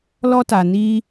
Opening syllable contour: high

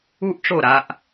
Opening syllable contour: high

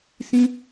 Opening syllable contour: high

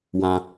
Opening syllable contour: high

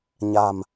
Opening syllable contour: low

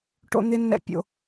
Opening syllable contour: low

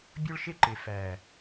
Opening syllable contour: high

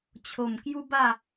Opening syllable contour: low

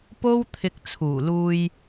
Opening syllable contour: high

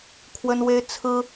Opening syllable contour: high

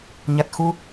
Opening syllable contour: low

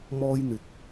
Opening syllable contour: high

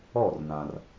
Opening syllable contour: falling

